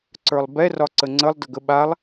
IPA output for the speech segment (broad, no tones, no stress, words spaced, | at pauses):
ǀə˞lˠbɛ rɒǀəŋ͡ǀəlˠ dəɡəɓalˠ